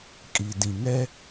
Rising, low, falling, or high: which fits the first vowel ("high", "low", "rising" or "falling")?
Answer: low